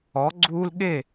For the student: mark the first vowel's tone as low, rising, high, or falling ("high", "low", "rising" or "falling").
rising